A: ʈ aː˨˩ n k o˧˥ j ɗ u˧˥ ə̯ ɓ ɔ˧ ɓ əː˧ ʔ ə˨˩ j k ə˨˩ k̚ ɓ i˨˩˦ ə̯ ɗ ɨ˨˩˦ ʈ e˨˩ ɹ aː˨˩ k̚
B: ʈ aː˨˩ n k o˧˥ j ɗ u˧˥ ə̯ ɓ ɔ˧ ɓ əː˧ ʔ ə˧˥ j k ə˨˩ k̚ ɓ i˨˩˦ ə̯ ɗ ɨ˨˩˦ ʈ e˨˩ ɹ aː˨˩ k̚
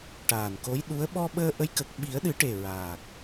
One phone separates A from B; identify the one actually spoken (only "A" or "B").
B